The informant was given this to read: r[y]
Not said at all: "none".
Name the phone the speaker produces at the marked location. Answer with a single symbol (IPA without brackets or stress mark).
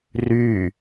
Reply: y